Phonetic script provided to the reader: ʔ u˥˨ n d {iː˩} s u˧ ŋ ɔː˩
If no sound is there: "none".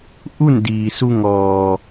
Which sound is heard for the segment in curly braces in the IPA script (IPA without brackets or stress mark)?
iː˩